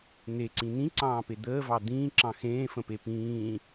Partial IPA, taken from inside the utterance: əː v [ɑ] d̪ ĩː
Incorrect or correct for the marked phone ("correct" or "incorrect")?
correct